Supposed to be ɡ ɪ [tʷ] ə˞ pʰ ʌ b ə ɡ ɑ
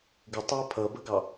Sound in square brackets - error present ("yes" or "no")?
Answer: yes